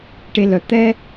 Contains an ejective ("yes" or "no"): no